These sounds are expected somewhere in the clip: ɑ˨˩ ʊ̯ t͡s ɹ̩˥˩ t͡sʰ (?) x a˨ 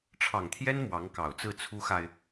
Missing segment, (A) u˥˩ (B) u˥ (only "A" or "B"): B